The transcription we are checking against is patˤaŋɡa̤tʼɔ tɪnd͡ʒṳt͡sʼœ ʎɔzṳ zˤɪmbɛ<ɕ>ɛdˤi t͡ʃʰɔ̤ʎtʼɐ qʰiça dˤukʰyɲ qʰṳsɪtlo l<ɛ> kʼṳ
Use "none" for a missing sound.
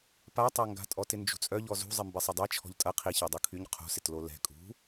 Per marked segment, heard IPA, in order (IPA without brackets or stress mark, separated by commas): sˤ, ɛ̤